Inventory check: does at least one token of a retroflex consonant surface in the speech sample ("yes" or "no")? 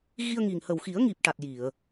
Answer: yes